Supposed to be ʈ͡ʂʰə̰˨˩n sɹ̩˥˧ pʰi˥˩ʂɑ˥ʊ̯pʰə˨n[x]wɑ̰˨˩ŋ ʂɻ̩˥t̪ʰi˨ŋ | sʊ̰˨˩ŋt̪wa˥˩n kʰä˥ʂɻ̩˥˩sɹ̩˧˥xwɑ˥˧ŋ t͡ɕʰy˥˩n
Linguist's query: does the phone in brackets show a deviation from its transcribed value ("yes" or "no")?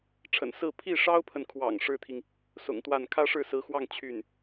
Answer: yes